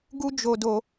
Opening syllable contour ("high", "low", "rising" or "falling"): high